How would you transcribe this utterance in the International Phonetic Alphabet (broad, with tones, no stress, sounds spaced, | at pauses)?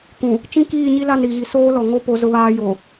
k ũ˨ | t͡ʃ ĩ˦ k iː˦˨ ɲ i˦ l a˦˨ n ɾ i˨ ɣ i˨ s oː˦ l ɔ˨ ŋ o˦ p o˦ z ʊ˦ β aː˦ j o˨